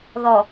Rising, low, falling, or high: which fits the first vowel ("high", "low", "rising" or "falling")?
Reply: low